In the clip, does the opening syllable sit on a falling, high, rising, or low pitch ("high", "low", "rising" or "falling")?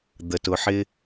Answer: low